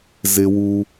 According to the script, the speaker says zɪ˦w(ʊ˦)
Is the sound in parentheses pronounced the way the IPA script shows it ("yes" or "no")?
no